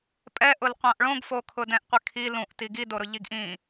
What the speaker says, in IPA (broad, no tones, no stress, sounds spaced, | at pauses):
pʼ ɛ ʔ ʊ l qʷ ã ʔ ɭ õ ɡ f o kʰ ʊ d ɛ̃ ʔ qʷ ɪ kʰ i l ũ ʔ t i ɡ i d o ɾ ʊ ʎ i ɡ ʔ ĩ